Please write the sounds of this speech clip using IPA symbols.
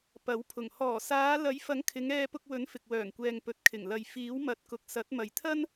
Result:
p ɐ˨˥ w pʰ ʊ˨˩ ŋ h ɔː˨˩ s aː˨˧ l ɐ˨˥ j f ɐ˨˥ ŋ kʰ ɪ˨˧ ŋ ɛː˧ p ʊ˧ k̚ w ɵ˨˥ n f ɪ˨ k̚ w œː˨˩ ŋ kʷ ɛː˨ ŋ p ɵ˨ t̚ kʰ ɪ˨˩ ŋ l ɐ˨ j f iː˨˥ w m ɐ˨˥ t̚ k ʊ˨ k̚ s ɐ˨˥ t̚ m ɐ˨ j t̪ʰ ɐ˥ n

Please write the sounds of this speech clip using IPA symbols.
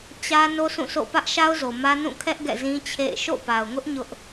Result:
t͡ɕ ä˦ n o˦ s ũ˦˨ s o̰˦˨ p ä˦ ʔ ʃ a˦ ʊ̯ z o˨ m ä˦ n ũ˦˨ kʰ ɛ˦ ʔ ɡ ɛ̰˦˨ z ĩ˦ t͡ɕʰ ḛ˦˨ ɪ̯ ʃ o̰˦˨ p a˨ ʊ̯ ŋ ʊ˦ ʔ ɲ ʊ˦ ʔ

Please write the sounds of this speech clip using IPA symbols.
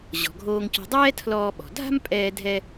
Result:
ʑ ɔ̤˩ ɡʱ oː˧ ŋ c ɔ̤˧ dˤ ɛː˥ tʰ l ɔː˧ ɓ ɔ̤˩ dʱ a̤˥ m pʼ ɛː˧ dʱ ɛ˧

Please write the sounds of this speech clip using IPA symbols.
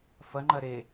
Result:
f ɐ ŋ͡ǃ ɐ ɾ e

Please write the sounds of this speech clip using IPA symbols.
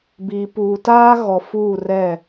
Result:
b iː˨ p uː˨ t aː˦ ɣ ɔ˨ f uː˦˨ r ɛ˦˨

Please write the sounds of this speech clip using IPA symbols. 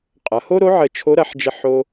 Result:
qʼ ɐ˩˧ h o˥ ɾ o˧˥ ʕ ə˧ t͡ʃʰ o˧˥ ɾ ɐ˩˧ ħ d͡ʒ ə˧ ħ o˧

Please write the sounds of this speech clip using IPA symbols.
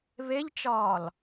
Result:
β e ʎ t͡ʃ ɒː l

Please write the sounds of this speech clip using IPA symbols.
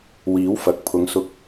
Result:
w iː˨˥ w f ɐ˨ k̚ pʰ ʊ˨˧ ŋ s ʊ˧ k̚

